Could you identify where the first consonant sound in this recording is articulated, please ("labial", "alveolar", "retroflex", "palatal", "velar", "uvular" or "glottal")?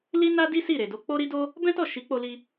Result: alveolar